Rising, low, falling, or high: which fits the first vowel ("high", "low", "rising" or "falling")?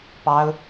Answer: high